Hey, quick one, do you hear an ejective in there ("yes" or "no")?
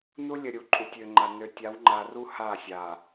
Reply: yes